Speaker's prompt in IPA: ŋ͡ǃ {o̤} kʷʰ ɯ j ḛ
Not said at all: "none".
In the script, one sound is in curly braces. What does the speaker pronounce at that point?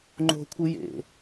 o̤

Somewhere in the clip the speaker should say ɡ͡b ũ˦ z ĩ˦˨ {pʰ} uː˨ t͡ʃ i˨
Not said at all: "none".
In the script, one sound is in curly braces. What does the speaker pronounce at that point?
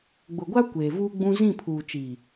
pʰ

